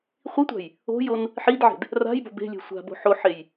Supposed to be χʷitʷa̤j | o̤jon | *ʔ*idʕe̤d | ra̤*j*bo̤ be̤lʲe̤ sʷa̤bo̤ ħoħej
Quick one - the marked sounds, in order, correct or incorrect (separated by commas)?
incorrect, correct